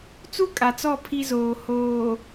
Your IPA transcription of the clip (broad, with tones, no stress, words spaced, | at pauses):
t͡su˦kʼa˨t͡sɔ˦˨ pʰi˦zoː˨ hoː˨